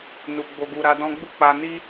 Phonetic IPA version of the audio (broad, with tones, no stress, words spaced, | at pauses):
nu˨ ɡ͡bo˨ɡu˨ ɾa˨˦dɔ̃˦ ɡ͡bu˦˨k͡pa˧ni˦